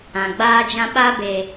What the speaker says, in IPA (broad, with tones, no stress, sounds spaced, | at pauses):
ã˨ ɡ͡b aː˦ d͡ʒ ã˦ ɓ a˦ b e˨